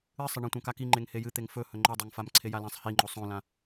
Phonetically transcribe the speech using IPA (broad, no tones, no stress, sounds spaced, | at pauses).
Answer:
ɨ sˤ ɐ ɳ ɐ̃ tʷ ã k a k i ŋ͡ǃ e ŋ h e j ɨ t̪ e ŋ f ɵ h ɵ ŋ͡ǃ o dˤ o ŋ f a m ǀʰ e j a l ã sˤ h i ŋ͡ǃ o sˤ õ l ã